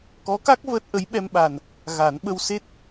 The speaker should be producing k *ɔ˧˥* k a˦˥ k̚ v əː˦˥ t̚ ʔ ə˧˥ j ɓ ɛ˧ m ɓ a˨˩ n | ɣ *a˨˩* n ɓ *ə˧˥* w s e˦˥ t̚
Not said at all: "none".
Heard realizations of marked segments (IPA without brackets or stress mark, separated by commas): ɔ˧˥, a˨˩˦, ə˧